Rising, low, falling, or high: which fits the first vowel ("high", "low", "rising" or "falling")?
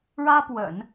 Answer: high